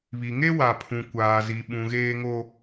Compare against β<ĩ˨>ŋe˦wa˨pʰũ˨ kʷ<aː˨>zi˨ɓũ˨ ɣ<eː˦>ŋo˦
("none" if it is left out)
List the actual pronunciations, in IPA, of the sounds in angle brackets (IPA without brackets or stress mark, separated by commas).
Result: i˨, aː˨, eː˦